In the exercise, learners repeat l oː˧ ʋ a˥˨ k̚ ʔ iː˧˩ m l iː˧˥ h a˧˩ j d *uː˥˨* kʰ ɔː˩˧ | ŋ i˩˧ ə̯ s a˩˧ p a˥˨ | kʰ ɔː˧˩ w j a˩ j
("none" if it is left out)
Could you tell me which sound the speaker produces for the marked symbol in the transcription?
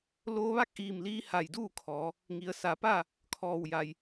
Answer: uː˥˨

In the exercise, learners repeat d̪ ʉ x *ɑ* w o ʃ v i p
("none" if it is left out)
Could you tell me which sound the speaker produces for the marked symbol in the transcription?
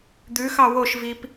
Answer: ɑ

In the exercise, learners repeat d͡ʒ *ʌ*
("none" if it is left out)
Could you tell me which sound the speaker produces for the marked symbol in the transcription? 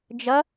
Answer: ʌ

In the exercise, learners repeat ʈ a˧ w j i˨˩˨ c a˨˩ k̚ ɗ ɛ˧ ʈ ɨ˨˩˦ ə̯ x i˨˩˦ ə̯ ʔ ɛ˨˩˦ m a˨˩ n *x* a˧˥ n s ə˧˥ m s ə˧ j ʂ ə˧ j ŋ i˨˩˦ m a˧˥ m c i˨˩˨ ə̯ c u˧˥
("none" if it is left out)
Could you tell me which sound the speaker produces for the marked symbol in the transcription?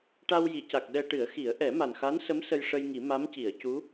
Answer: x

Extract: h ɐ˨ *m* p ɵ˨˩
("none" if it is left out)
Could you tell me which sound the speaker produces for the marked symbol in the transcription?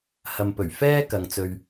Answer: m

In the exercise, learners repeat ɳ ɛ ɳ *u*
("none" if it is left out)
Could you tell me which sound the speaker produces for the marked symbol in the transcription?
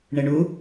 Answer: u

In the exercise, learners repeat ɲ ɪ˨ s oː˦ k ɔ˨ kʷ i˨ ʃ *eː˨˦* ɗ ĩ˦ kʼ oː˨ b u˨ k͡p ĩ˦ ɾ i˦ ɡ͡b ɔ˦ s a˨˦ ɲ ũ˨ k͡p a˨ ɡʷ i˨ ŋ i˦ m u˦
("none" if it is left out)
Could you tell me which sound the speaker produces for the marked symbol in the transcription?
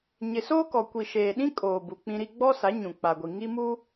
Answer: eː˨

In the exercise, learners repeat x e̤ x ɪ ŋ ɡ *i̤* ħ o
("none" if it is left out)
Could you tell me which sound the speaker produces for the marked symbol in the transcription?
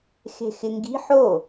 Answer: i̤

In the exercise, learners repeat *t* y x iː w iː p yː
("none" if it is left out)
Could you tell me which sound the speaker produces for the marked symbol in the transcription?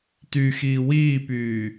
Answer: t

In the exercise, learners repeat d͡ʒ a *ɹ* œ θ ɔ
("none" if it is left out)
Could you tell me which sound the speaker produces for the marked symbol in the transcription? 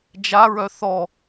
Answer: ɹ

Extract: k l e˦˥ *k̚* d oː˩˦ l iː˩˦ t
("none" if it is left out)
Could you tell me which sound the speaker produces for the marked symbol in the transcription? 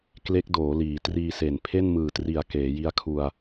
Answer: k̚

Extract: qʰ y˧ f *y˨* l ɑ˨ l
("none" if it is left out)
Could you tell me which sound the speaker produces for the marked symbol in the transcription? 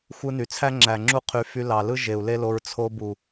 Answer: y˧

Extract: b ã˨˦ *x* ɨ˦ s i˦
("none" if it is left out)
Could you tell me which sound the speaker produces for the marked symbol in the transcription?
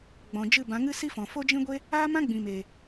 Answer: ŋ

